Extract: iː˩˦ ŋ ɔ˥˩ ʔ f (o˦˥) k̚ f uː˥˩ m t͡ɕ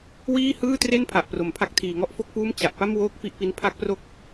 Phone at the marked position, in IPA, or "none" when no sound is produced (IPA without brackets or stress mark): o˥˩